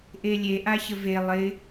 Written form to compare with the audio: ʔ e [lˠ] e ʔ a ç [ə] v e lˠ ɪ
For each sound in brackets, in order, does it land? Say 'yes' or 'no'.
no, yes

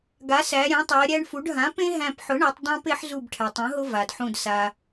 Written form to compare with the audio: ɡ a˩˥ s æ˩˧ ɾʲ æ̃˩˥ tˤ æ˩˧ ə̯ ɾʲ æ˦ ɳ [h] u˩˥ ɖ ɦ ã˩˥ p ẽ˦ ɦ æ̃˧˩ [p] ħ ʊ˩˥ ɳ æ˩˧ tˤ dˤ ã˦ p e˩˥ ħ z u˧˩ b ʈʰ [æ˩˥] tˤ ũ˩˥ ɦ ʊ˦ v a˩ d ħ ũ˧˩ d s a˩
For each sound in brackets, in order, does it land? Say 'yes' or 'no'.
no, yes, no

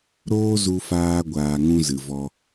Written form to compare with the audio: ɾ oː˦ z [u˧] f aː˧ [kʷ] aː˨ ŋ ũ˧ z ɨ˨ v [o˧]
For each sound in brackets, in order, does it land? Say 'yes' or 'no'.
yes, no, no

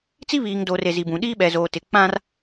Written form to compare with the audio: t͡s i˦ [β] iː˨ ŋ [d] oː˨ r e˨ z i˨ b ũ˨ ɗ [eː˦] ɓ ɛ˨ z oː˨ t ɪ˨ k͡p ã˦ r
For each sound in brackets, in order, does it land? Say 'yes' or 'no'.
yes, yes, no

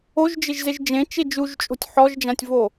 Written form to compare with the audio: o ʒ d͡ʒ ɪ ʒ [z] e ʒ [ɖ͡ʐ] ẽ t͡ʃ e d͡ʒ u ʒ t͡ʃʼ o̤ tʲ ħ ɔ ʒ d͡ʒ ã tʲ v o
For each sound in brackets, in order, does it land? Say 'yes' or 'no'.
yes, no

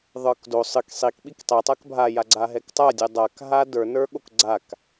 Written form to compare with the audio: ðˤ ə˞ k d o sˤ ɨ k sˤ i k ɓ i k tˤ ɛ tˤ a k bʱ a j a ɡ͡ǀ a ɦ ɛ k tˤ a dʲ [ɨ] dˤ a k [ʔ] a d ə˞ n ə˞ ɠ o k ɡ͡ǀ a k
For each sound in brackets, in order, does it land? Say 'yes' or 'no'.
yes, no

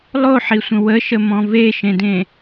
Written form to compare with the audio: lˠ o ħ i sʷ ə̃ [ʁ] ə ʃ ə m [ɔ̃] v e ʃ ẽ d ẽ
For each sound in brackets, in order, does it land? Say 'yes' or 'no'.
no, yes

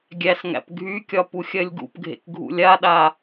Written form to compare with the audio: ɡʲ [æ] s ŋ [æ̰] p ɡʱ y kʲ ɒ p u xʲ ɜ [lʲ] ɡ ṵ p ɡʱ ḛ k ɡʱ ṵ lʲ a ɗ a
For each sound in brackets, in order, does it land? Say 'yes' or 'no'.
yes, yes, yes

